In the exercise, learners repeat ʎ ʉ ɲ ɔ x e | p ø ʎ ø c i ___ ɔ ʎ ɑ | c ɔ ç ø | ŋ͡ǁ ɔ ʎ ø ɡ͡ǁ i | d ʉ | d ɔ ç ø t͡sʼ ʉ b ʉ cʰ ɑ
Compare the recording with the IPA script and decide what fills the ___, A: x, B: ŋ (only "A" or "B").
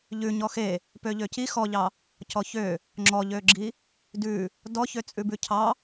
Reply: A